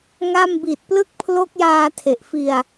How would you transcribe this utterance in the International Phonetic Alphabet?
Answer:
ŋa˥˩m bi˨˩t̚plɯ˦˥k̚ pʰlo˦˥k̚jaː˧tʰe˨˩ʔ fi˧a̯

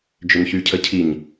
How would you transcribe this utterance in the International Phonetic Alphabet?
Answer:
d͡ʒʏnçycʰəcʰiɲ

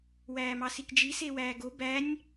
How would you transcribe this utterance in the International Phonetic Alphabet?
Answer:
wæːmɑsikd͡ʒi sewæːɡo bænʲ

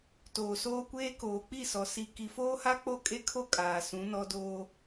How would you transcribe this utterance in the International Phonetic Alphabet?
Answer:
toː˨soː˦kʷeː˦ koː˨k͡pi˦˨sɔ˨ si˨ ki˨foː˦ha˦k͡po˦˨ kʼe˦kʰo˦ kʼaː˨sũ˨˦nɔ˦ doː˦

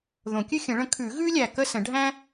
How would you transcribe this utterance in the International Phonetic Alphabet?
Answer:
ðõ˨˩˦kʲʉ˥˧xʲə̃˨˩˦ ɭə̃˨˥kʰʉ˨˩˦ ɣʉ˥lʲæ˨ kə˥˧sə̃˨˩˦ɖʱæ̃˥

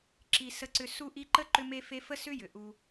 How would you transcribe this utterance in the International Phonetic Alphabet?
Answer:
ǁi˨ sə˦ǀʏ˦ su˦ʔi˦ǃə˥ ǃʏ˥me˥ fe˦fə˥sʏ˥ jʏ˩ ʔu˨

